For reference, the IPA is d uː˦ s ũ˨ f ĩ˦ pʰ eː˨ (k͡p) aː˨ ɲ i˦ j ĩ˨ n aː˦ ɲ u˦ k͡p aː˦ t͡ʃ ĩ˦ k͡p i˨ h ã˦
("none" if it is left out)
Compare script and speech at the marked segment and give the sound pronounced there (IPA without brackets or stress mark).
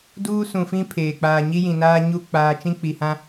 k͡p